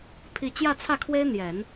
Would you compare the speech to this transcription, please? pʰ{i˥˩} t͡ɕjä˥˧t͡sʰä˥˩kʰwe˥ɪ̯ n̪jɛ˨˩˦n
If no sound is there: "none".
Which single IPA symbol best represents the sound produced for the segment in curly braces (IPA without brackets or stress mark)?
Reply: i˨˩